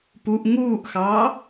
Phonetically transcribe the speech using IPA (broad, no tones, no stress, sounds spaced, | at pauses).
p u ʔ ŋ uː ʔ x ɑː